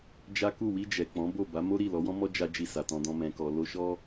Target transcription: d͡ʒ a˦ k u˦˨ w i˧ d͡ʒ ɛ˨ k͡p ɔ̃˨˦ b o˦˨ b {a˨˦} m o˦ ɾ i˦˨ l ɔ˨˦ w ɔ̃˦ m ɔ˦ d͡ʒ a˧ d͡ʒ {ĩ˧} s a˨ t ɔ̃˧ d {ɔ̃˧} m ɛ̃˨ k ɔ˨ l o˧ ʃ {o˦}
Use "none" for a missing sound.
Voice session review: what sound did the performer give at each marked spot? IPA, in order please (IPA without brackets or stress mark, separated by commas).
a˨˦, i˧, ɔ̃˧, ɔ˦